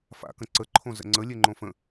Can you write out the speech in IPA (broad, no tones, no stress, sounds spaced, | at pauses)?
f a̰ k ə̃ ǀ ə ǃʰ õ z ə̰ ŋ͡ǀ ə lʲ e ŋ͡ǃ õ f ə̃